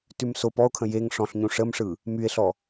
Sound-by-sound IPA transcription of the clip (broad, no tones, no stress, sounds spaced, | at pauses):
t ʉ m s o p ɔ o̯ kʰ ə̃ j e ŋ ʂ ɔ̃ ɬ ɲ ũ ʂ ə m ʂ ɯ | m y e̯ ɬ ɔ